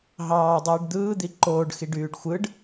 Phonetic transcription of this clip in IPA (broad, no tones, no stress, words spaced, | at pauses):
ɦɑːdˤiːɖ d̪ɯːd̪i ǃoːɖxiɖ yːɖxʷɯɖ